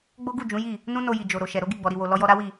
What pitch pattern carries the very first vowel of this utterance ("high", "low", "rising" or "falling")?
high